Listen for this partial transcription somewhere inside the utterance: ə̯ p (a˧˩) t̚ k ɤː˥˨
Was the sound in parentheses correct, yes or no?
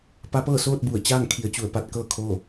no